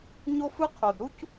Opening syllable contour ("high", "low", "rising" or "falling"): high